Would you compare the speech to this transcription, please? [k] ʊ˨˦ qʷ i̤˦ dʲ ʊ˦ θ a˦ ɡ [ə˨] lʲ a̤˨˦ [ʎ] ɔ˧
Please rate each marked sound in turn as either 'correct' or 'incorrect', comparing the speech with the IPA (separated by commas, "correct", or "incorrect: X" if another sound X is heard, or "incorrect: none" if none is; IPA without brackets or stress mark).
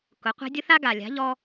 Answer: correct, incorrect: a˨, correct